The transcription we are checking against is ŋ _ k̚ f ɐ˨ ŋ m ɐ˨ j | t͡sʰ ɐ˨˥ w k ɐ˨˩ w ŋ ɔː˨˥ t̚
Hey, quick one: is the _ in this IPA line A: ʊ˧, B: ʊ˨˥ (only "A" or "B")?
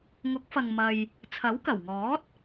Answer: B